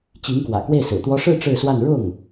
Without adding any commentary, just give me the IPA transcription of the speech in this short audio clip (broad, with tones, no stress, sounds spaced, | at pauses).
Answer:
t͡ɕ i˧˥ ŋ k w ä̰˨˩ k w e˥˩ ɪ̯ s ɹ̩˨˩ t̪ w ɔ˥ ʂ ɻ̩˥˧ ʈ͡ʂ ɻ̩˥˧ s w a˥˧ n ɻ ʊ˥˩ ŋ